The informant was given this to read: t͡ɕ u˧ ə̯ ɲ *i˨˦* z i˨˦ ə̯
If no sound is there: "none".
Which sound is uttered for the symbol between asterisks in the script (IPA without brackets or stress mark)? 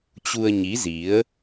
i˨˦